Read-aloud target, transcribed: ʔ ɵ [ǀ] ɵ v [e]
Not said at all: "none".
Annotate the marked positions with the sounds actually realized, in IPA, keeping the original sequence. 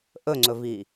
ŋ͡ǀ, i

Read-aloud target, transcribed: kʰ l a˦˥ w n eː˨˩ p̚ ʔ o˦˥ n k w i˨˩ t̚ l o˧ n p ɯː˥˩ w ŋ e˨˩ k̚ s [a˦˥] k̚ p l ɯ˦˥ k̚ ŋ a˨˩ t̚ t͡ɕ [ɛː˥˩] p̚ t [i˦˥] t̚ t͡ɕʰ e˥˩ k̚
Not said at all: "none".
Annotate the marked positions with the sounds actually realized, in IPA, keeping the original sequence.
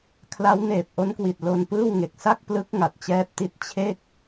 a˥˩, ɛː˦˥, i˦˥

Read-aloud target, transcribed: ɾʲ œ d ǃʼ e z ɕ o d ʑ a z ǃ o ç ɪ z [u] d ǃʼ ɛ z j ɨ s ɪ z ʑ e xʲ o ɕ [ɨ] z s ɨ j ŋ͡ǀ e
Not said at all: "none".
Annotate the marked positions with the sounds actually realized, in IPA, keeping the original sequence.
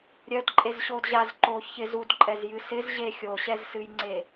u, ɛ

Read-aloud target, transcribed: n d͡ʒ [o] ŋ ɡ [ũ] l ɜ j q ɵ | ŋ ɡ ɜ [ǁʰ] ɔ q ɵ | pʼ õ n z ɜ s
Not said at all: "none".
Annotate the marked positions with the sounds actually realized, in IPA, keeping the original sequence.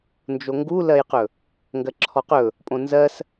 o, u, ǁʰ

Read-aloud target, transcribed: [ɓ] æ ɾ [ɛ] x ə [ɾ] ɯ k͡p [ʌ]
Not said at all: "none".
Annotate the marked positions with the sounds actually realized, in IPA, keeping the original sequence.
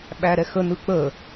ɓ, ɛ, n, ə

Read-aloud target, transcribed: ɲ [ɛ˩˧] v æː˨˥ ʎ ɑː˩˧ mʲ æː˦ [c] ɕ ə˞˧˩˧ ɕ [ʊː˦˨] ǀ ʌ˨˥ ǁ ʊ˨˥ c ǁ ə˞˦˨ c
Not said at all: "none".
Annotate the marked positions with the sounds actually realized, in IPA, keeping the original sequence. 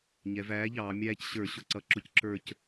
ɛ˩˧, c, ʊ˦˨

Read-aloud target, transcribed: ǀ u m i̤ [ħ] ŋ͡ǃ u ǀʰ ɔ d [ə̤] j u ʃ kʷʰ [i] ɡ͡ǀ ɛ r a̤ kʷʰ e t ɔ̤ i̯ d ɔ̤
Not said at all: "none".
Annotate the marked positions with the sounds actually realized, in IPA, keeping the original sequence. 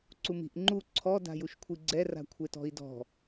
ʔ, a̤, i

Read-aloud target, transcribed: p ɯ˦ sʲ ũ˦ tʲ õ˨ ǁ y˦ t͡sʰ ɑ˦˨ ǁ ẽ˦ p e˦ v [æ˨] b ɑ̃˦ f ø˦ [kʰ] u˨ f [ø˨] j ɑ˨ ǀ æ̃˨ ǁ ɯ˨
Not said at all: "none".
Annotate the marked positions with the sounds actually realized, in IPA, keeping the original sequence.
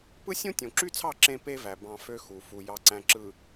æ˨, x, u˨

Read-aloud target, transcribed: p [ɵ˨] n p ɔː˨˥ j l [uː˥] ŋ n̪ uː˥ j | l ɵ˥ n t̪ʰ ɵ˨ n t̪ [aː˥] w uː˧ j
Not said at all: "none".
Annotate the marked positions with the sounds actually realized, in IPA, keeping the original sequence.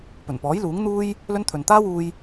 ɵ˨˩, uː˨˥, aː˥

